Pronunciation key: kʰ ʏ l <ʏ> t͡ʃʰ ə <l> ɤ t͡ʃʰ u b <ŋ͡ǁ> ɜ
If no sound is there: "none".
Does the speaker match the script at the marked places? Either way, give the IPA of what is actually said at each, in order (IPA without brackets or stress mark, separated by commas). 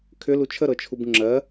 u, ɾ, ŋ͡ǁ